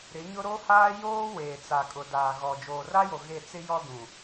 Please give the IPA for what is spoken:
ɾ ɪ˨˦ ɲ ʊ˦ ɾ o˦ h aː˦ j oː˦ w eː˨ t͡s a˨ kʼ ʊ˨ d aː˨ ɣ ɔ˨ d͡ʒ oː˨ r a˦ j o˨ ɣ e˦˨ t͡s ɪ˦ j ɔ˦ d ũ˨

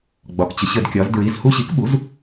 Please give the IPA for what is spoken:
ɡ͡b ɒ˩ k t͡ɕ ə˩ ɕ ə˧˩˧ d kʲ ɒ˩˧ z d ɹ i˩˧˩ z h u˧ ɕ i˩˥ k ɓ u˩˥ z

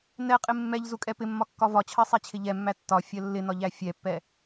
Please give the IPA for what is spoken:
n ɛ qʼ ɪ mː ɛ ʎ z u kʼ ɛ p ɪ mː ɒ kː ɒ v ɒ t͡ɕʰ ɜ sˤ æ t͡ɕʰ ɪ ʎ ɛ mː æ tː ɒ fʲ ɜ lː ɪ n ɒ ʎ æ fʲ ɛ pː ɛ

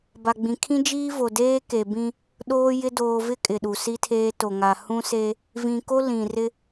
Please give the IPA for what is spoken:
b a˨ ɡ͡b ĩ˨ kʰ ĩ˦ d͡ʒ iː˦ v o˨ d eː˦ k e˨ b ĩ˦ | ɗ oː˦ j ɪ˦ d oː˨ v ɪ˦ kʼ ɪ˨ ɗ u˨ s i˦ tʰ eː˦ t o˨ ŋ a˨ h ũ˦ s e˦ | v ĩ˨ k o˦ l ĩ˨ r ɪ˦

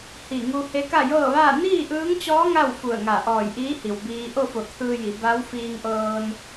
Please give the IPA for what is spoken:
h i˧˩ ŋ u˧ h e˧˥ k a˥˨ j ɤː˥˨ ʋ aː˥˨ n iː˥˨ ʔ ɯː˧˥ ŋ t͡ɕ ɔː˧˥ ŋ a˥˨ w f u˧˩ ə̯ ŋ a˧˩ ʔ ɔː˧˩ j ʔ iː˧˥ h i˩ w b iː˧ ʔ o˥˨ f o˧˩ t̪ʰ ɯː˧ j i˩˧ b a˧˥ w f iː˧ ŋ ʔ ɤː˧ n

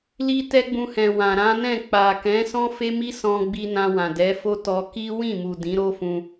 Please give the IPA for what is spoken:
l i˦ t ɛ˦ ɡ͡b ũ˧ h ɛ̃˨ w ã˨ ɾ ã˨˦ n ɛ̃˦˨ k͡p a˨ k ɛ̃˨˦ s ɔ̃˦ f e˦ m i˦ s ɔ̃˧ ɡ͡b i˧ n ã˧ w ã˨ d ɛ˨˦ f o˦ t ɔ˧ k i˦ w ĩ˦˨ m u˨ d ĩ˨˦ ɾ o˦ f ũ˧

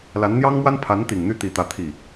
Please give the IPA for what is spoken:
l a˧˥ n n̪ j ɑ˥ ŋ m w a˥ n pʰ a˧˥ n t̪ i˨˩ ŋ n̪ y˥˧ t̪ i˥˧ t̪ ä˥˧ t̪ʰ i˥˩

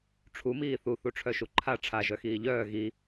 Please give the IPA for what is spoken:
ʈ͡ʂʰ u m iː θ u θ u ʈ͡ʂʰ œ ʃ u ǃʰ a ʈ͡ʂʰ a ʒ œ x iː ʎ œː ɣ i

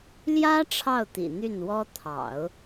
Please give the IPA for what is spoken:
l j ä˥ ʈ͡ʂʰ ɑ˥˩ ʊ̯ t̪ ḭ˨˩ n̪ y˥˩ n w ɔ˥ t̪ʰ ɑ̰˨˩˦ ʊ̯

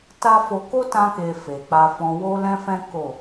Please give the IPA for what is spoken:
t a˦ f o˧ k o˦ t ã˧ k e˨ f e˨ k͡p a˧ f ɔ̃˧ w o˦ l ɛ̃˦ f ɛ̃˦ k o˦˨

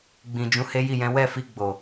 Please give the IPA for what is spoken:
ɡ͡b ĩ˨ d͡ʒ ũ˨˦ h e˦ j i˦˨ j ɛ̃˨˦ w ɛ˦˨ f i˧ ɡ͡b o˨

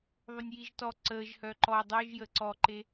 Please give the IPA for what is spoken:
ðˤ o nʲ j i ʒ t ɔ ǀ əː ʒ h œ ǃ ɔ dˤ œ ʒ j ə ǀ ɔ ǃ e

